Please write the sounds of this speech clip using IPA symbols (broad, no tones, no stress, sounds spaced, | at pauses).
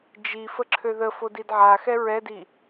d͡ʒ i f ə ǁʰ ø ð ə f o d i d ʕ a x ɛ ɹ ɛ d i